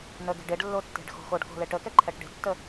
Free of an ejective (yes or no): yes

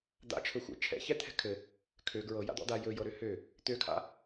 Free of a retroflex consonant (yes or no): yes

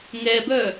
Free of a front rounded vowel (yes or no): no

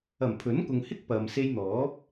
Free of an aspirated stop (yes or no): no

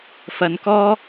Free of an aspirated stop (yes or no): yes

